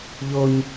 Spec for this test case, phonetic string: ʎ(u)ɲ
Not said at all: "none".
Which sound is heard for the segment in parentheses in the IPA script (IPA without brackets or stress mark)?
o